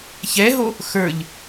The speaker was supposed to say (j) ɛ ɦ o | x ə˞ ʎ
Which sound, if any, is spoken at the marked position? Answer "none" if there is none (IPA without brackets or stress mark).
ç